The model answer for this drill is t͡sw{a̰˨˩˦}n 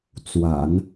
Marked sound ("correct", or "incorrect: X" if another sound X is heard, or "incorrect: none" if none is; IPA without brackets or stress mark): correct